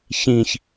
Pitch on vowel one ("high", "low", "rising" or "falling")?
low